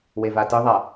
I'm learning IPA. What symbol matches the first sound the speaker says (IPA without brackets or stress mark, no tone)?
w